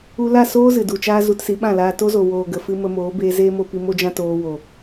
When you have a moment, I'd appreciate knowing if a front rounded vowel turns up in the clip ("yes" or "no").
no